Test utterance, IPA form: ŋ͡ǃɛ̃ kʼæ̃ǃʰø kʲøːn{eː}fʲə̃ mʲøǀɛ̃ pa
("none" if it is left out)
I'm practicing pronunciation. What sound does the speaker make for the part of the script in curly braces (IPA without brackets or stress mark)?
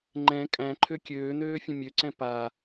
øː